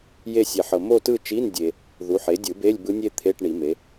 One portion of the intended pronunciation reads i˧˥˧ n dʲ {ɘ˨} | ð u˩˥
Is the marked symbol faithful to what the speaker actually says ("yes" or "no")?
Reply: no